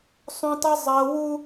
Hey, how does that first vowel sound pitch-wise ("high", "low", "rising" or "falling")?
high